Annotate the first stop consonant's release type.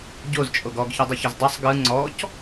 plain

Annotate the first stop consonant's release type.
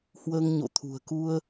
aspirated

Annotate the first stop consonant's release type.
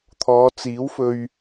aspirated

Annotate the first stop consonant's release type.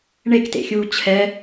plain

